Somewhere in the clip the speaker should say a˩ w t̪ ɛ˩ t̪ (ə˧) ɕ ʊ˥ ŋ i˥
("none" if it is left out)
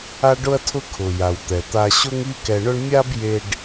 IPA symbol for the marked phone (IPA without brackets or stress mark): a˧